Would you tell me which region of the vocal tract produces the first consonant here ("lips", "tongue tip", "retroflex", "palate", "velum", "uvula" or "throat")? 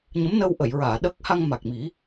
palate